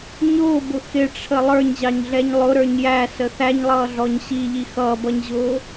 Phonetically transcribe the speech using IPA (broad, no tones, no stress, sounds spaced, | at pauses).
ɲ ʊː b ʊ x ɪ ʈ͡ʂʰ ə lˠ ə˞ ɲ ʑ ɑ ɲ ɮ ɛ ɲ lˠ ʊ ɾ ə˞ ɲ j æ s ə θ æ ɲ lˠ ʌː ɮ ɔ ɲ ɕ i ʎ i x ʌː b ʌ ɲ ʑ ʊː